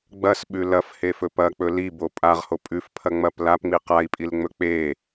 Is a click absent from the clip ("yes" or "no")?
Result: yes